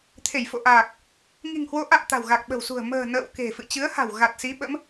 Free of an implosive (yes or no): no